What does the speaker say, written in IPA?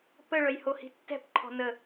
p ə ɭ œ j h o h i̤ tː ɛ̤ p ǃʰ ɔ̤ n ə

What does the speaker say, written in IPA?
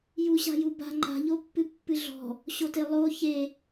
j u ɕ a̤ j u b a̤ ŋ͡ǃ a̤ ʎ o pː ɨ pː ɨ ɮ ɔ̤ | ɕ o t e lˠ o ç e

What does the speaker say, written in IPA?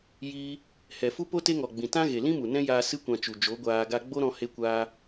j iː˧ | h ɛ˨ f u˦ p o˦ t e˦ ŋ ɔ˨ ɡ͡b ĩ˨ t ã˦ ɣ e˨ l ĩ˦ m u˨ n ɛ̃˦ j aː˧ s ɨ˧ kʷ ã˨ t͡ʃ u˨ d͡ʒ o˨˦ ɡʷ aː˧ ɡ a˧ ɡ͡b o˦ ɾ ɔ̃˧ h e˧ kʷ aː˧

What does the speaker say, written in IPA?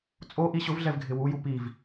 t͡sʼ o ʔ i ɕ ʊ v ɮ ɛ v ɡʱ ɪ w u j u p i v

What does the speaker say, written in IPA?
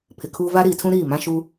pʰ ɪ˨ kʰ uː˦ v a˦ ɾ iː˨ tʰ ũ˦ ɾ iː˦˨ m ã˦ ʃ uː˦

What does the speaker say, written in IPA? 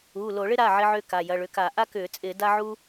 uː˩˧˩ l o˧˩˧ ɭ ɪ˥ ɾ a˩˧˩ ʕ ɪ˥ ʕ ʏː˥ k a˩˧˩ j ɐ˩˧˩ ɭ ʏ˩˧˩ k a˧˩˧ ʔ a˥ k ʏː˧˩˧ t͡sʼ ɪː˧˩˧ d a˥ ʕ u˥

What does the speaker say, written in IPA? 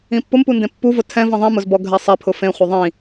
ĩ pː ʊ m p u n d ẽ pː u v ʊ tʰ ɛ̃ v ĩ ðˤ ĩ m ʊ z b ɔ ɡʱ ɛ sˤ ɛ pʰ ʊ f ẽ χʷ e ðˤ ĩ

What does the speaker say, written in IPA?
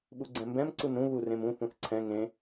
ɓ u ɡ͡ǀ ɛ̃ m b ɛ̃ m ǀ u n ɾ ũ β u r ẽ m ũ θ ũ θ ǀʰ ɛ̃ ŋ ẽ

